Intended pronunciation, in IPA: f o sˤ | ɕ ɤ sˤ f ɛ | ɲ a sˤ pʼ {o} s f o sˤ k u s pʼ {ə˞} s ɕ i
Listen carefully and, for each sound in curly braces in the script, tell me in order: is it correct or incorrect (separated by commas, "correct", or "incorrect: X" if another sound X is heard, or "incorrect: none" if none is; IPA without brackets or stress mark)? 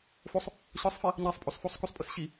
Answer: correct, incorrect: ɤ